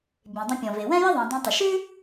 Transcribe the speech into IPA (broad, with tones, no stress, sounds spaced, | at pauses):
bʲ ẽ˩ dˤ ə̃˧ pʲ ɔ̃˩ v e˩ w ɛ̃˥ j ə˥ ðˤ ẽ˩ dˤ ɛ̃˧ tˤ ə˩ ʃ ʉ˥